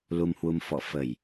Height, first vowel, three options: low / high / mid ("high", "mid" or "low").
high